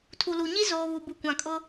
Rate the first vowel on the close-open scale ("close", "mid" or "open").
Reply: close